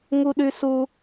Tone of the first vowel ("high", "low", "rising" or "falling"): high